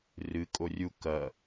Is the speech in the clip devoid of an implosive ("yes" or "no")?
yes